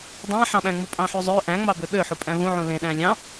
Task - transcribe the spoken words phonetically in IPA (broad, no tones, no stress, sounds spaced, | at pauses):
dˤ æ̃ ħ ɑ̃ ɓ æ̃ ŋ͡m u pʼ ɑ̃ ħ y zˤ ø ʔ æ̃ ŋ͡m ɑ b ø ɓ ø ħ u pʼ æ̃ v ũ ʕ ũ l ẽ ɗ æ̃ lʲ ɑ̃